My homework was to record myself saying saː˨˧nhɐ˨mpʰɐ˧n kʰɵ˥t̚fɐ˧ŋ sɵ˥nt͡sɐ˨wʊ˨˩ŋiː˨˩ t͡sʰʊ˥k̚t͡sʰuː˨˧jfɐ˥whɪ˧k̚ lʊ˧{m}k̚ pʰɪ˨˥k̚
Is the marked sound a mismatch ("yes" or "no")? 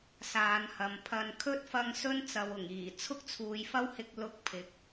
yes